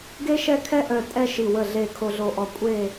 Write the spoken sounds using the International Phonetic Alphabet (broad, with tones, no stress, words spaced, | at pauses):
ɡe˥ʃɛ˥˧kʰɛ˥ʔœ˧˩ tʼɛ˥ʃi˧˩ wə˧˩ɮe˧˩ kʰo˧ɮo˧ʔɔ˧˩ kʷʼe˥˧